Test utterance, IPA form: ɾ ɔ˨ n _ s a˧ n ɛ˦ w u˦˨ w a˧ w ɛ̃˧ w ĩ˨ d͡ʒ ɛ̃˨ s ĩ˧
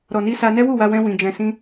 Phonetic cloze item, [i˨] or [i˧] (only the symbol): i˧